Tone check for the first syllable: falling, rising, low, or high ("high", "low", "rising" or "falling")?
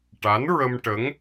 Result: rising